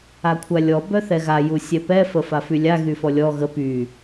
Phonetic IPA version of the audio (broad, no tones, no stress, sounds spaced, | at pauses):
a kʷʰ a lʲ ɔ b œ θ ɛ ɣ a j u sʲ ɛ p ɛ f ə f a f y lʲ a ɣ y f ɔ lʲ ɔ ɣ ə p y